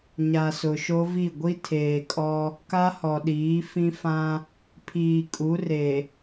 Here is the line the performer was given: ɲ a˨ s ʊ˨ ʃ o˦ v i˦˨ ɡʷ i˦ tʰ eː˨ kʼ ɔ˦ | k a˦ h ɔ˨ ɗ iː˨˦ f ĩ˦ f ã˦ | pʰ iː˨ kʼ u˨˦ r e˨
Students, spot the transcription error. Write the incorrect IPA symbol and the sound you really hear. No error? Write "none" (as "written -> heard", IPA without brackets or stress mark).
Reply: none